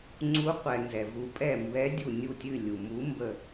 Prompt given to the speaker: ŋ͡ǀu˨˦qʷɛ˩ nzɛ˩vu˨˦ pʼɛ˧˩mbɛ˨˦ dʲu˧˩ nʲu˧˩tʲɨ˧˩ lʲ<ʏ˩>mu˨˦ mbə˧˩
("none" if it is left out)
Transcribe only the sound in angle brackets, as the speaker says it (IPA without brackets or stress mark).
u˩